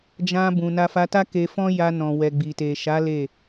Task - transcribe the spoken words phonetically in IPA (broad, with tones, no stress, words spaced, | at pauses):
d͡ʒã˧ bũ˨na˧fa˧ta˦ ke˧fɔ̃˦ja˧ nɔ̃˨wɛ˨ɡ͡bi˨ te˨ʃa˨˦ le˦˨